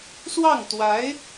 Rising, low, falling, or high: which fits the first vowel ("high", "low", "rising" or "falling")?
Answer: falling